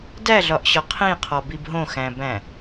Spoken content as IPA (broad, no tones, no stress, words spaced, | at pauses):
dæɮɒʔɕɒ qʰĩqʰɒbib ɦõxæ̃bæ̃